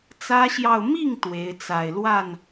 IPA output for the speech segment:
t͡s ä˥ ɕ j ɑ˥˧ ʊ̯ m i˥˩ ŋ t̪ w e˧˥ ɪ̯ t͡s a˨˩ ɪ̯ l w a˥˩ n

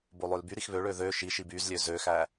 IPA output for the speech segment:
b o lˠ ø l b y ɾ i x β ø ɭ ø ð ø ʃ i ʃ i b y z lʲ ø z ø x æ

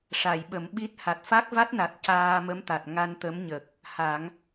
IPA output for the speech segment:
ʂ a˨˩˨ j ɓ ə˨˩˦ m ɓ i˦˥ t̚ h a˨˩ t̚ f a˦˥ k̚ v a˦˥ t̚ n a˨˩ t̚ c aː˧ m ə˧˥ m t̪ a˨˩ t̚ ŋ a˧ n t̪ ə˧˥ m ɲ ə˨˩ k̚ | h a˨˩˦ ŋ

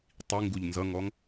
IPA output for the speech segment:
tˤ i ŋ ɡ u ʎ n z ʌ ŋ ɔ ŋ

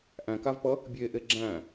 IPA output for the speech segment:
ʔ æ̃ k a v p ʌ | bʲ e ʔ e ɡ͡ǁ æ̃

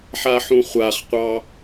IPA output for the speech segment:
ħ a ħ ũ χʷ a χ qʷ ɑ

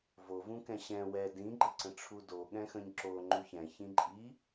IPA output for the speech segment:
v o v ũ k ɛ̃ ɕ ɛ̃ w ɛ d ĩ ɡ͡ǃ ə ǀ ə̃ ʈ͡ʂʰ u d o ɠ ɛ̃ x ə̃ ɲ ǁ o ŋ͡ǃ u ç ɛ̃ ç ĩ ǃʼ i

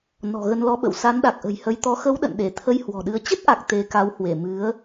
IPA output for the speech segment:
n ɔ̤˨˩ ɣ ə˧ n l ɔ˧ ɓ ə̰˧˨ w s a˨˦ n ɗ a˨˩ k̚ ʔ ə̤˨˩ j h ə˨˦ j t̪ ɔ˨˦ x ə˨˦ w ɗ ə̰˧˨ n ɗ e˧˩ t̪ʰ ə˧ j h w ɔ̤˨˩ ɗ ɨ˨˦ ə̯ t͡ɕ ə˦˥ t̚ ʔ a˨˩ k̚ t̪ e˨˦ k a˨˦ w h w e˧˩ m ɨ˨˦ ə̯

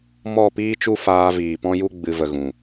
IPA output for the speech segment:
m ɔ˦˨ p iː˦ t͡ʃ u˦ f aː˧ v iː˨ p ɔ̃˦ j u˦ ɡ͡b ɨ˧ v ə˧ ɣ ũ˨

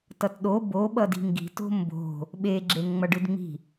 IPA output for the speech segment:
t ʌ t ɗ o b o ɓ ʌ d i̤ ŋ ɡ i̤ t o̤ m b o̤ | ɓ e ɡ͡ǁ e ŋ ŋ͡m ʌ ɖ ɯ d ŋ͡m i̤

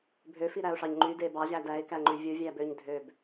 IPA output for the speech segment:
bʱ ø f i ɾ æ ʊ̯ ʂ ɑ ɲ ŋ͡ǃ y d e b ɑ ʑ æ d æ ɪ̯ k æ ŋ͡ǃ y vʲ u vʲ æ b ø ɲ dʱ ø b

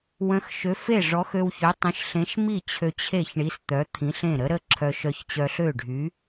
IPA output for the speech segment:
w ə̃˨˥ x ʃ ø˨˥ f e˥˩ ʐ ɔ˨˥ x ø˧ w ç ø˨˥ tˤ ə̃˨˥ ʃ ɬ ẽ˨˥ ʃ m i˥˩ t͡ɕʰ ø˧ t͡ɕʰ e˥˩ ç ɳ i˨˥ s t̪ œ˨˥ t̪ʰ ĩ˨˥ ɬ ẽ˥˩ ɾ ə˨˥ ɾ ə˥˩ ǁʰ œ˧ ʃ œ˧ ç t͡ɕ œ˧ ɬ ø˥˩ ɖʱ y˨˥

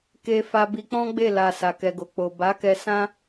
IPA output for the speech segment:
k e˧ f a˧ b i˧ k͡p ɔ̃˦ ɡ͡b e˦˨ l a˨ s a˨ k ɛ˨ ɡ o˨ k͡p o˨ b a˨˦ k ɛ˧ s ã˦

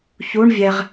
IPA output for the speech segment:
ç u ɳ vʲ ɛ ʁ

